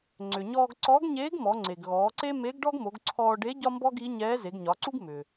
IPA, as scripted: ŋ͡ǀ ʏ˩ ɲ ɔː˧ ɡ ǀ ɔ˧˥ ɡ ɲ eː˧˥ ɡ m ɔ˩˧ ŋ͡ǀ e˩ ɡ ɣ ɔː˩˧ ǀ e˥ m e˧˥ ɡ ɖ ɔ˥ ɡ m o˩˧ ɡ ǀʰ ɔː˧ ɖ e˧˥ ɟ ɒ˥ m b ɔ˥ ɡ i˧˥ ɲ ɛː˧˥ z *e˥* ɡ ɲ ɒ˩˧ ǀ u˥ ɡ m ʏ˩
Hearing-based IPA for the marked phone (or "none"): e˩˧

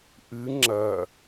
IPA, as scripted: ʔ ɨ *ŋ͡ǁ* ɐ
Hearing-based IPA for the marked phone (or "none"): ŋ͡ǁ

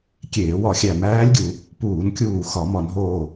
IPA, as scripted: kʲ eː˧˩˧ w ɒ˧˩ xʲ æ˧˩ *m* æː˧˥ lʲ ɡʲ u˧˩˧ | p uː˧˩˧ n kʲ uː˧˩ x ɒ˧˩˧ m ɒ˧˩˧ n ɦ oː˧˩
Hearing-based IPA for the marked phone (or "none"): m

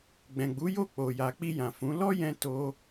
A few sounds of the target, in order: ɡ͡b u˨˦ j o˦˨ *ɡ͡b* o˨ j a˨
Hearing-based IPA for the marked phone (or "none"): k͡p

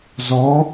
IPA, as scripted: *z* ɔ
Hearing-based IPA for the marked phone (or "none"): z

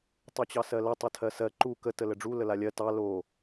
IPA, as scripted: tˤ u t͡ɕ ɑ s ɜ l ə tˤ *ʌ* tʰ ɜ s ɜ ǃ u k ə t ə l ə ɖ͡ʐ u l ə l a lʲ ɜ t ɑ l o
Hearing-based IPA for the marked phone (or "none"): ə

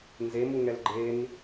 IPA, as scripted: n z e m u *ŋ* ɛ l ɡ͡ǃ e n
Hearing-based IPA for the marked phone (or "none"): ŋ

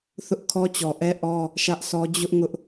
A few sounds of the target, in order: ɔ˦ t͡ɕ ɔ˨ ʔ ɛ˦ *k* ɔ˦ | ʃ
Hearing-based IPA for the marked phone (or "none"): ʔ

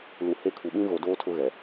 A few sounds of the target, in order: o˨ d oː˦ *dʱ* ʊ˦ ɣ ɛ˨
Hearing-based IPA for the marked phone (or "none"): tʰ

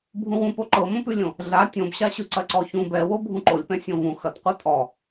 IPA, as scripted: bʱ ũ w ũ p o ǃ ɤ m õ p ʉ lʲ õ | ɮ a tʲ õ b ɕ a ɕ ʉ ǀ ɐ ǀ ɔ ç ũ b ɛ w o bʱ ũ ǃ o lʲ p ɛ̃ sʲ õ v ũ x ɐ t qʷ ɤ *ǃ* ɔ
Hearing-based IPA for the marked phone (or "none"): tʼ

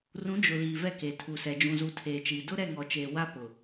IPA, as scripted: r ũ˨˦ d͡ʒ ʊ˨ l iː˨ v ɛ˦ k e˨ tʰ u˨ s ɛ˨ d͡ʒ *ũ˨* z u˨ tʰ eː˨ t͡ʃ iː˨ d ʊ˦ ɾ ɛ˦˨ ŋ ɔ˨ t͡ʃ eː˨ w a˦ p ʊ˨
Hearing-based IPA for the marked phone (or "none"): ũ˨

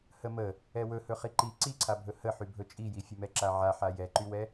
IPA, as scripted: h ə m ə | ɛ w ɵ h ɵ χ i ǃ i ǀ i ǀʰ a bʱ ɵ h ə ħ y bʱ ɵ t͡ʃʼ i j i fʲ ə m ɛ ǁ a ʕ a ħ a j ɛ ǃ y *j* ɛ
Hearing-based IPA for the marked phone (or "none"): w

